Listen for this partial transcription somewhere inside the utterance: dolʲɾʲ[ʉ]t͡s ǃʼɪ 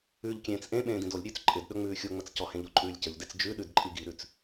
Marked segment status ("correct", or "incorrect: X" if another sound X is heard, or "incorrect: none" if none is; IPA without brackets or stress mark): incorrect: ʉː